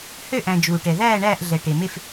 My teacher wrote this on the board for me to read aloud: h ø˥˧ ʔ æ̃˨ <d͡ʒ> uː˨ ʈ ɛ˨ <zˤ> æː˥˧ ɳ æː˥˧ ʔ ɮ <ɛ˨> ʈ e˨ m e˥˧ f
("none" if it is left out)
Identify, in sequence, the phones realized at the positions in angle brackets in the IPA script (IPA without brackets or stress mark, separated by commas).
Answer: d͡ʒ, ð, ɛ˨